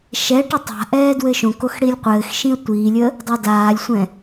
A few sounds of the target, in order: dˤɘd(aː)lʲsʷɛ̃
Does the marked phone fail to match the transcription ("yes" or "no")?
no